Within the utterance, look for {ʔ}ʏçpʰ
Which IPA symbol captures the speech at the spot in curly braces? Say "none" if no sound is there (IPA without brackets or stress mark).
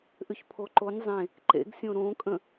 ʔ